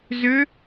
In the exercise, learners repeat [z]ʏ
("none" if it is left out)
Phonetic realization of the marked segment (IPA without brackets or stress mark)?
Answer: z